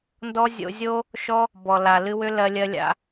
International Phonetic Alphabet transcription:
ndɔ˦ zʲo̰˧zʲo˦ | ʃɔ˦ | bɔ˨ la˨ lɨ˧wʏ˦lɜ˧ lʲɜ˧lʲa̰˧

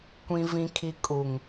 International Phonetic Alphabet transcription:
kʷĩ˨vĩ˨kʰi˨ kʼu˨ŋ

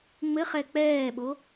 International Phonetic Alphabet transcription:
ŋ͡mɘχɛ k͡pɛːɓo

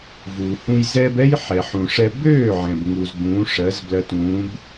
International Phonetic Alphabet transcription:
vuː˩hũ˧j zɛ˥b ɛ˥jħɛ˩ħũ˩ ʂɛ˧bøː˥˩ʕɛ̃˩b ŋu˩z bũː˩˥ʂɜ˩˥zblɜ˧tũː˩˥b

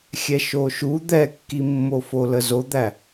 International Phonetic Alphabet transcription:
xʲɛʃoʃu d̪ɛkːimːofo ləzod̪æ

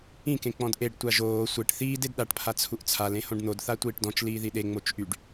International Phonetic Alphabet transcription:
ĩkẽ k͡pɔ̃dʔeɖ tʷaʒoː sʷeʈ θiːd edɗaʈpʰa t͡sʰuʔt͡sʰal ẽhõɖn̪odθa tʷiːʈdɔ̃t͡ʃ liːðiɗe ŋ͡mot͡ʃʔyɖ

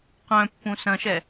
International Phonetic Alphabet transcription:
qœ̃pːũ sɐ̃ʃɛ

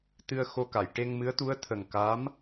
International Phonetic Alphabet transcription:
t̪ɨ˧ə̯xo˧ka˨˩˨j ʈe˧ŋmɨ˧˥ə̯t̪u˧˥ə̯ t̪ʰə˨˩ŋ ka˧˥m

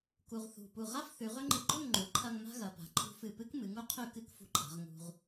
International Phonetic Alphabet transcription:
ku˧ʁθṳ˧˩ pu˧˩ʁa˥f θʉ˩˧ʁɵ˥ŋ͡ǃɨ˧ ɡ͡ǃɵ˥˧ŋŋ͡ǃu˩˧ǃʰɐ˧ŋ ma̤˥ɣɐ˩˧pa̤˩˧ ǃʰṳ˧fɨ˧˩pɨ˥k mɨ˩˧ŋu˥qʰʉ˥˧kɨ˥˧k fṳ˧ǃʰa̤˩˧ʁ ŋṳ˧ʁ

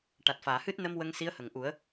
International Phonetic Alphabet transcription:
ʈa˨˩t̚faː˨˩˨hɨ˦˥t̚ nə˧m wə˧ŋsi˧˥ə̯ hə˨˩˨ŋʔu˨˩˦ə̯

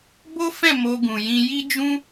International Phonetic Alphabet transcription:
bo˦fɛ̃˦˨ mo˧ɡũ˨jĩ˧ ji˦d͡ʒũ˦

